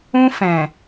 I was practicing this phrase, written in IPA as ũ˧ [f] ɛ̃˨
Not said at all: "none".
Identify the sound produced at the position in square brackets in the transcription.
f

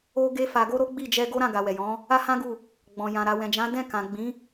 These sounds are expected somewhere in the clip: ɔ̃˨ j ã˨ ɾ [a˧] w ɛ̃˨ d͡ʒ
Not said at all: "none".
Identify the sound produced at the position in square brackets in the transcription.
a˨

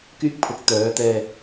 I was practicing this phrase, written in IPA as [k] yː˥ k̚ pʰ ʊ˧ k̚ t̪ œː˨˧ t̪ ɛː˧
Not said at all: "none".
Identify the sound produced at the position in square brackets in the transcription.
k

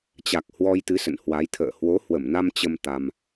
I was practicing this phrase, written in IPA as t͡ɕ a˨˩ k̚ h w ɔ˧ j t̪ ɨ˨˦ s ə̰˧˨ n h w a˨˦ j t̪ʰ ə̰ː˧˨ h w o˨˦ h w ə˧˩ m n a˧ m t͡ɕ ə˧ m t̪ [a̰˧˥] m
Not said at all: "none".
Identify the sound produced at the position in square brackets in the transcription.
a˧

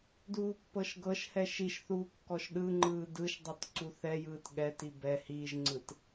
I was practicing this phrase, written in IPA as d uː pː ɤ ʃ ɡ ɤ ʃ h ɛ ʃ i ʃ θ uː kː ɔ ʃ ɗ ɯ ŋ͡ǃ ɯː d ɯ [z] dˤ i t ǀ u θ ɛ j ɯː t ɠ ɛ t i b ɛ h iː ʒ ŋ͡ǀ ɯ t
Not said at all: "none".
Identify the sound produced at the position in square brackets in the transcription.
ʃ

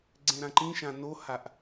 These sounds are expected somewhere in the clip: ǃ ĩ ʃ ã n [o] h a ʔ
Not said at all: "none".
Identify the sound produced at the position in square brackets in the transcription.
o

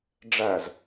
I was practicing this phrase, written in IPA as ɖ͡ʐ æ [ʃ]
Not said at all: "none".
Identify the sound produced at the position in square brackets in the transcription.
z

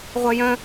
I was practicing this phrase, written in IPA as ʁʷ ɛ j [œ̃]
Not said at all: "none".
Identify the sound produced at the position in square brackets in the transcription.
œ̃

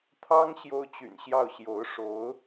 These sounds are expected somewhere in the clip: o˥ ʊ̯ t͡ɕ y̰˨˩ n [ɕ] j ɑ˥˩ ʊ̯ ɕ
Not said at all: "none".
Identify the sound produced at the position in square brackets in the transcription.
ɕ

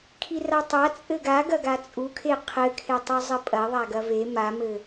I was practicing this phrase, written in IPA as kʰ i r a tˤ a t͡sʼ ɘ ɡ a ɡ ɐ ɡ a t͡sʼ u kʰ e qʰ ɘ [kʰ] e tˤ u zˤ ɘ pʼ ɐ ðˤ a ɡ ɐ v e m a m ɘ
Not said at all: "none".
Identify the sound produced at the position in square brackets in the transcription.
kʰ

